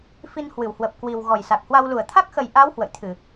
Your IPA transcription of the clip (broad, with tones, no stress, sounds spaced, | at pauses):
f i˧ n h w ɨ˧˩ w h w ə˨˩ p̚ k w i˨˩ w ɣ ɔ˨˩ j s a˨˩ k̚ h w a˧ w l u˧˩ ə̯ t̪ʰ a˦˥ k̚ x ə˨˩ j ʔ a˨˦ w h w ə̰˧˨ j t̪ʰ ɨ˧˩˨